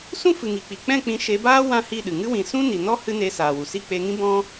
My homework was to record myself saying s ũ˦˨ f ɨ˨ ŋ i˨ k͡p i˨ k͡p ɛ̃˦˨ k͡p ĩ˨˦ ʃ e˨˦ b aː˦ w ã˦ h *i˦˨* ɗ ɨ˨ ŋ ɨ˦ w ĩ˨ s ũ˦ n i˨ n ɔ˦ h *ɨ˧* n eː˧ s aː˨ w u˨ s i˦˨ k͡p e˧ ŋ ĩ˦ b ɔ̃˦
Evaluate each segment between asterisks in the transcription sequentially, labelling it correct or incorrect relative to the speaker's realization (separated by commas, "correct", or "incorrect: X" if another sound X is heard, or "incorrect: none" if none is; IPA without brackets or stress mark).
correct, incorrect: ɨ˦